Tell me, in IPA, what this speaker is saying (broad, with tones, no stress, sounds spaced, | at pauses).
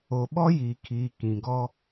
o˨ ɓ ɔ˦ j iː˨ kʰ iː˨ k ĩ˨ ɡ ɔ˦